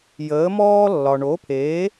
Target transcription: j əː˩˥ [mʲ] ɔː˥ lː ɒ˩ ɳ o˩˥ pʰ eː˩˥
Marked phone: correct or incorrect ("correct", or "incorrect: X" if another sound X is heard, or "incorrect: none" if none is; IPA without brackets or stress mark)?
incorrect: m